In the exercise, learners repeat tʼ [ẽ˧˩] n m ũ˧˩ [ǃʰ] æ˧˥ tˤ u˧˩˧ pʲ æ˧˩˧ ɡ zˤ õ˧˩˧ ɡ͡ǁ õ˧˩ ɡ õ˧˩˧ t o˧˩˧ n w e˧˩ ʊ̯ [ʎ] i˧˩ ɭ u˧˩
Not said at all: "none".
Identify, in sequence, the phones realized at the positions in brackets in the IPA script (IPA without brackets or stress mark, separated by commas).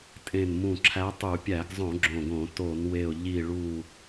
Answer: ẽ˧˩, ǁʰ, ʎ